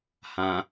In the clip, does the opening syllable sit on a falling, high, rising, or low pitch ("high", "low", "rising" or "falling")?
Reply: low